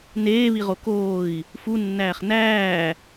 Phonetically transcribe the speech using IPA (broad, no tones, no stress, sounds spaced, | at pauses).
n eː β i ʁ o k oː i̯ | f u nː æː χ n æː